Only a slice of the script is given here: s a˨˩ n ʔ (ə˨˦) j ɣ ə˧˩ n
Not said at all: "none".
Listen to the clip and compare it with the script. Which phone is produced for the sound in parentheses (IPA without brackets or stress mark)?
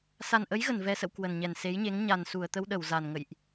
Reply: ə˨˦